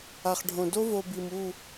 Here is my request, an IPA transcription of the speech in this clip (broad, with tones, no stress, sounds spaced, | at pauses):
a˨ χ ɖʱ õ˨ d o˦ v o˧ b i˨ m u˦˨